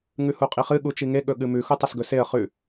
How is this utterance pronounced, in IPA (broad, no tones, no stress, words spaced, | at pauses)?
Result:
ŋʉhuqʼiχɨ ɠut͡ʃiŋe ɠɵɠɨmʉ xutˤɐsɡɵseə̯ χʉ